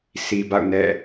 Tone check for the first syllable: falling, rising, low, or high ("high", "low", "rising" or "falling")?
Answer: low